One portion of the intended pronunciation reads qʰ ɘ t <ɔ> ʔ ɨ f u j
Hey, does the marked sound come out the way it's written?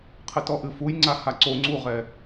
yes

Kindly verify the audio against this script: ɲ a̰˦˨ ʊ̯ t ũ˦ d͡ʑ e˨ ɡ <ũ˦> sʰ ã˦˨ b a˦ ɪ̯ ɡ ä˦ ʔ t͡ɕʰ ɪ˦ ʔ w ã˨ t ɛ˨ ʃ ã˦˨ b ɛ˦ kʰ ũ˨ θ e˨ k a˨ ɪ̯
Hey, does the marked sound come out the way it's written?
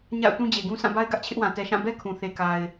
yes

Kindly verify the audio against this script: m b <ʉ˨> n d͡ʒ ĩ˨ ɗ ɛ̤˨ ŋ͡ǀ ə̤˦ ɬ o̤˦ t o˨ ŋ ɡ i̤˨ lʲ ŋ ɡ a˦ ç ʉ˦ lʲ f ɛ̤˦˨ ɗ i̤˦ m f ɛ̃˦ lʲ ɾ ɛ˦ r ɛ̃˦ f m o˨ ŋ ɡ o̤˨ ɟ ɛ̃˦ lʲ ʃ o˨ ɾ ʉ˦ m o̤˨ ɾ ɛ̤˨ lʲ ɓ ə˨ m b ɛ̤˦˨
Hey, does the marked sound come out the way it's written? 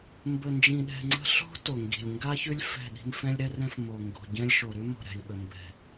no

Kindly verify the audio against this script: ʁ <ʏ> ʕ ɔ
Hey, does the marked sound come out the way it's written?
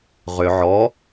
yes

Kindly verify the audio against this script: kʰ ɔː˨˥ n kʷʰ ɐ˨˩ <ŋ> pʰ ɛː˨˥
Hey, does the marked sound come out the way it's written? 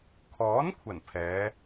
no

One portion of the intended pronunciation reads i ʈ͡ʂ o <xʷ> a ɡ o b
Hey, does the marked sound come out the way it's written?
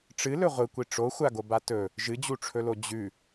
yes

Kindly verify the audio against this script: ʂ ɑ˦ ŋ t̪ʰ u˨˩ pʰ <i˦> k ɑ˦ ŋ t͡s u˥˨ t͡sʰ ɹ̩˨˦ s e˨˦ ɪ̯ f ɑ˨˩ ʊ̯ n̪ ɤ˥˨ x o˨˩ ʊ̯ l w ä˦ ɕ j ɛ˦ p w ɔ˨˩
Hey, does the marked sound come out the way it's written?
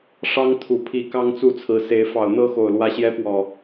no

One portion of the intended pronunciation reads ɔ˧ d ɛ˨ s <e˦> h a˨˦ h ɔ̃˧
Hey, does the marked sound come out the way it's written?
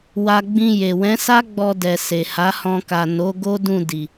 no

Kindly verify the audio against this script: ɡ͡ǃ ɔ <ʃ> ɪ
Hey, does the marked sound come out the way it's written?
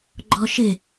yes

